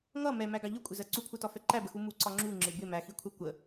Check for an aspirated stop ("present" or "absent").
present